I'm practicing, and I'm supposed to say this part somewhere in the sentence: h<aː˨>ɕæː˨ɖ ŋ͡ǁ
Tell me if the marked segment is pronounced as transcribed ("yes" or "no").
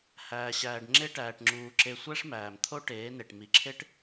no